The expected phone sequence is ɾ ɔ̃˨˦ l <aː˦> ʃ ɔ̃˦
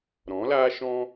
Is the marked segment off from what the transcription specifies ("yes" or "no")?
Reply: no